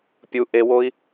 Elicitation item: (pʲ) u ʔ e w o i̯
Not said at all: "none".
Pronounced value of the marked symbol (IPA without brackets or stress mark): pʲ